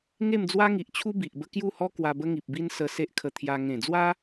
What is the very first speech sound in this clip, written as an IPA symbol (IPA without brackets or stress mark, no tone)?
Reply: ŋ